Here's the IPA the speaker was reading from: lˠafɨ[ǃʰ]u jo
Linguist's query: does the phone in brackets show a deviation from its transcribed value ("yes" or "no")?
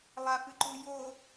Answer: yes